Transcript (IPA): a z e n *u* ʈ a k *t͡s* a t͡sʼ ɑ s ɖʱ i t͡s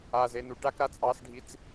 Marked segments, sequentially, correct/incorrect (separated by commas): correct, incorrect